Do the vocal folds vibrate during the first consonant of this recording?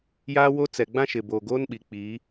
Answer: yes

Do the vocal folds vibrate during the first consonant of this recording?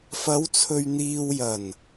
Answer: no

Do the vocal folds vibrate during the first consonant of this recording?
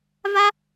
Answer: yes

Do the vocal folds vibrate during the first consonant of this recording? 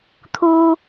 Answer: no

